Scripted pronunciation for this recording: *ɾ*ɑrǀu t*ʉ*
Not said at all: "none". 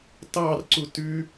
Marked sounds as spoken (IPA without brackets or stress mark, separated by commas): t, ʉ